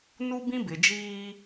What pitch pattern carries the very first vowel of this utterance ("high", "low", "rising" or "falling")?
high